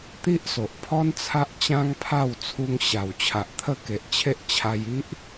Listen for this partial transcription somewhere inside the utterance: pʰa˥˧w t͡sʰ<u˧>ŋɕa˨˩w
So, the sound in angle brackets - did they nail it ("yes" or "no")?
yes